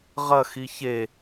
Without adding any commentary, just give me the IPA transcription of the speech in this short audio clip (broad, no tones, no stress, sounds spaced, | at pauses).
ʁ ɐ x i ç e